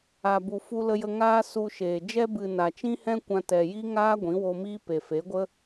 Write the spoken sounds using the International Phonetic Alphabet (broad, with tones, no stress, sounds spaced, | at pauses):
a˨ b u˨ f u˧ l ə˧ j ə˧ ŋ aː˦ s u˧ ʃ eː˨ d͡ʒ ɛ˧ b ɨ˨ n a˨ t͡ʃ ĩ˦ h ɛ̃˦ kʷ ã˧ t ɛ˨ j i˦ ŋ aː˦ ɡʷ ĩ˨˦ w o˧ m iː˦ p e˨ f e˨˦ ɡʷ ə˦